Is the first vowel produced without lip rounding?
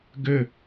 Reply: no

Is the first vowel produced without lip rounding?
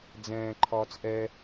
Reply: yes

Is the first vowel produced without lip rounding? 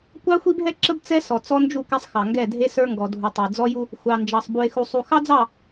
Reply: yes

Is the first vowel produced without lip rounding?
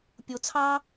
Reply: no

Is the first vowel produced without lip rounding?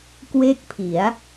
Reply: yes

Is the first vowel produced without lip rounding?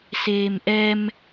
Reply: yes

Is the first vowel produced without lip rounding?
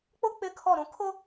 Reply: no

